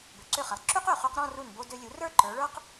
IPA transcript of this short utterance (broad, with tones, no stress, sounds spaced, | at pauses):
b ø˩˧ ǀ ø˧˩ χ ɛ˩˧ lˠ ǁ ʉ˥ q ø˧˩ χ ʉ˧ q ɾ ɔ̃˥˧ r u˧˩ n b o˧ d ø˧ lʲ u˩˧ r ə˞˥˧ ǃ ə˞˩˧ ɭ ə˞˥ q